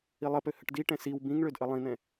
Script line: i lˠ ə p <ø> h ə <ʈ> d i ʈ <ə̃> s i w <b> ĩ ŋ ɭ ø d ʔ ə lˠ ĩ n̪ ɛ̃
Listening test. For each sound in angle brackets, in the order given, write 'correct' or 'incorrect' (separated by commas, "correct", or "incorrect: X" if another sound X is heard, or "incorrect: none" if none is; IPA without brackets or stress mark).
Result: correct, correct, incorrect: ɛ̃, correct